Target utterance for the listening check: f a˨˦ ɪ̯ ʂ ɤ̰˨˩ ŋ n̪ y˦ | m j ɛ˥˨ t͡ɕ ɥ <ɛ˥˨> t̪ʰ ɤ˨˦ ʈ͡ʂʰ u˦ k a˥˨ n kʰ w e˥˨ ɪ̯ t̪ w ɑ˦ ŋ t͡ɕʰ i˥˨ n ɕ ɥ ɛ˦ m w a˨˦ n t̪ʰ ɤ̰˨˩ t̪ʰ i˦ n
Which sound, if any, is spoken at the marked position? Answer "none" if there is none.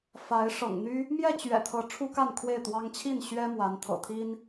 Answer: ɛ̰˨˩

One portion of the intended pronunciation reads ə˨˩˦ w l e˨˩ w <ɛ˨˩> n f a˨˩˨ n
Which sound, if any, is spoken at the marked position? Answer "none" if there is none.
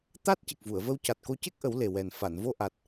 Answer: ɛ˨˩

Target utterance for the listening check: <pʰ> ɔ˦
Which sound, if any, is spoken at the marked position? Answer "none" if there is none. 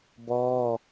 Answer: b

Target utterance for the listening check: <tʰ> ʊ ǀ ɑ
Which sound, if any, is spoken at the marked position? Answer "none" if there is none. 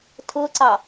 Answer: tʰ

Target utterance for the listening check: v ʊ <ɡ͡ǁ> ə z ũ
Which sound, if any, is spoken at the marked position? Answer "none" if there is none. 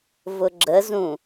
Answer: ɡ͡ǁ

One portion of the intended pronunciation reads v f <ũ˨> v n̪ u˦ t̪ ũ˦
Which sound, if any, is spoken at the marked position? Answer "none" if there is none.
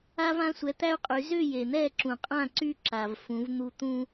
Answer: ũ˨˦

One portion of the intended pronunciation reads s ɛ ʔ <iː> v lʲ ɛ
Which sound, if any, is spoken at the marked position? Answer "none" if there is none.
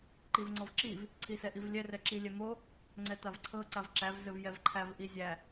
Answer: i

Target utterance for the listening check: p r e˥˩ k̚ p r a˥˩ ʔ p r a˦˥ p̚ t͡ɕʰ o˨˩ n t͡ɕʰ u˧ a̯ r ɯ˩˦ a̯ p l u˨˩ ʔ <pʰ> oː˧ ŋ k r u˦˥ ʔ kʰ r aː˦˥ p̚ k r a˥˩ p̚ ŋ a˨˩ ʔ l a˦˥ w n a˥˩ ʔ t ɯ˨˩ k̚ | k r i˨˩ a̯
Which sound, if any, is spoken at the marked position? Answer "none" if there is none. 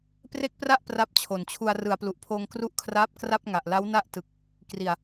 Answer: pʰ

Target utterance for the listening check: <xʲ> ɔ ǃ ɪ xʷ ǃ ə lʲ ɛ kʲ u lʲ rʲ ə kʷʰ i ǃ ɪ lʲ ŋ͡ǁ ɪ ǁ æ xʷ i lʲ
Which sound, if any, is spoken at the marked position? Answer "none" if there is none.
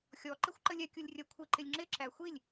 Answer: xʲ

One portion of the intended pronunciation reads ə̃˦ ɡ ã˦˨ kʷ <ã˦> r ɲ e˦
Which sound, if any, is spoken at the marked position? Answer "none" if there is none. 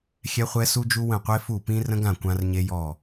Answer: ã˦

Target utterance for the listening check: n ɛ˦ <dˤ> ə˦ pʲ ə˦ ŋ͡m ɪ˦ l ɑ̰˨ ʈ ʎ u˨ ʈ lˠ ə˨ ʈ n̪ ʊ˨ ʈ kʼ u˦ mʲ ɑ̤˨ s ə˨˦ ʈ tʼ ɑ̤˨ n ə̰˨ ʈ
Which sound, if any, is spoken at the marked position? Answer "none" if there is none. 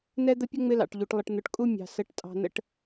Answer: d̪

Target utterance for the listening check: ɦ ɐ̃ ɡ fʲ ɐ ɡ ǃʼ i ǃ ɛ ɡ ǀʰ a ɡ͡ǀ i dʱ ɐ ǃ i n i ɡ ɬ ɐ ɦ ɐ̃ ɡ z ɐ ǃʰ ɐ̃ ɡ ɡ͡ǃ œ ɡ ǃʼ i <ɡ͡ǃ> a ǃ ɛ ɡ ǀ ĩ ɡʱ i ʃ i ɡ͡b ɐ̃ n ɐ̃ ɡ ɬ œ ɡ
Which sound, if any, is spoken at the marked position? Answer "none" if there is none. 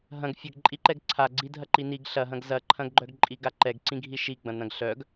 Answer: ɡ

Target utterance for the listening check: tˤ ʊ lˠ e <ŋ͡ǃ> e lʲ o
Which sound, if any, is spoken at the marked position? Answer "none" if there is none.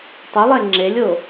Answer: ŋ͡ǁ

